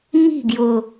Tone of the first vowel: falling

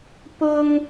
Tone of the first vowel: high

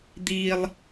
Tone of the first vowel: high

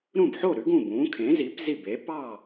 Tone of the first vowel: falling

